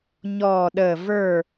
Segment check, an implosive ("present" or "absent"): present